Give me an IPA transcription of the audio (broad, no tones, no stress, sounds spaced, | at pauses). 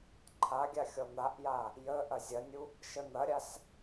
ǃʰ a ɡʲ a xʲ ɔ n̪ a ʔ j a | j ə ʔ ɐ zʲ ɐ nʲ u | ʃ ə n̪ ɐ ɾʲ a s